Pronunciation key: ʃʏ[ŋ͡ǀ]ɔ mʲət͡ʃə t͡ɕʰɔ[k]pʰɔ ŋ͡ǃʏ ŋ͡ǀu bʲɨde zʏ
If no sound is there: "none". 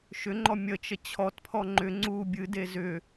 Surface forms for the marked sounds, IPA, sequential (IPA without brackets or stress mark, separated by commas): ŋ͡ǃ, t